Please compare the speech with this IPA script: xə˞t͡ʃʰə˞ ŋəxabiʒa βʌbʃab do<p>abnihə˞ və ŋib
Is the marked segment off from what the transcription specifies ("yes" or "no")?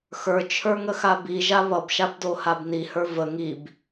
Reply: yes